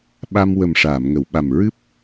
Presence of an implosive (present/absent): present